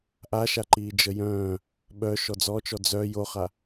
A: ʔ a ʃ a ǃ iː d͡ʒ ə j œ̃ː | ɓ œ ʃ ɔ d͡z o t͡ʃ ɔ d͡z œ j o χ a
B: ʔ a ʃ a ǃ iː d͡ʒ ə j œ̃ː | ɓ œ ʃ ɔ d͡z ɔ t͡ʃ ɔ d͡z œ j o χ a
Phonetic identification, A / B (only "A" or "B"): B